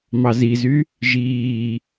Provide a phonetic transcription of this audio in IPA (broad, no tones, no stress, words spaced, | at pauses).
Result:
mɑzizy | ʒiː